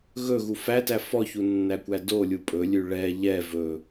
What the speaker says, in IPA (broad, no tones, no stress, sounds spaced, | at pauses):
ɣ ɵ ɣ u f æ t æ f ɔ ç u nː æ kʷ æ d o lʲ u pʼ ɵ lʲ ʉ ɭ ɛ ʎ ɛ v ɵ